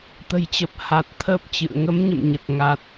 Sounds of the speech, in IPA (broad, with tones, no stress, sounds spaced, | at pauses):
t̪ ə̤˨˩ j t͡ɕ ə˨˩ p̚ h a˨˩ t̚ t̪ʰ əː˦˥ p̚ t͡ɕ ɨ̰˧˨ ə̯ ŋ ə˨˦ m ɲ ə̰˧˨ m ɲ ə˨˩ t̚ ŋ a˨˩ t̚